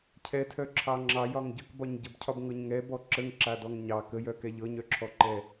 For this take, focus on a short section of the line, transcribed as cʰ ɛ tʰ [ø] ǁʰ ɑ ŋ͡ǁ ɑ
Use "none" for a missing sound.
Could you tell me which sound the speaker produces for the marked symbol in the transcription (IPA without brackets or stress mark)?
œ